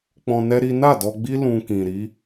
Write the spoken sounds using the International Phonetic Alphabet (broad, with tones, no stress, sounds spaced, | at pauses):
k͡p ɔ̃˧ n ɛ˦ ɾ i˦ n a˦˨ d ɔ˧ ɡ͡b i˦ l ũ˧ k ĩ˨ ɾ i˨˦